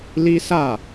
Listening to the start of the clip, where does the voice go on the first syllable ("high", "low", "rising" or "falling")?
high